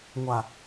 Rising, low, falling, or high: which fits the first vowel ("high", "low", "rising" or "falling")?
low